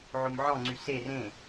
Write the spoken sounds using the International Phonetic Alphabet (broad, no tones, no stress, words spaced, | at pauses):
ʕomʕɔ̃ŋ͡ǀy ser ẽ